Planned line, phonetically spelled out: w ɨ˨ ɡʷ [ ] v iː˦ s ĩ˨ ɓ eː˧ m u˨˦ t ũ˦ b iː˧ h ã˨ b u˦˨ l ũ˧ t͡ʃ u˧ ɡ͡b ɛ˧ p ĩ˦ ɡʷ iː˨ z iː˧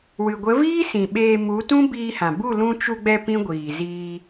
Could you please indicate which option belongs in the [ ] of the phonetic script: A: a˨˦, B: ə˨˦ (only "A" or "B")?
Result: B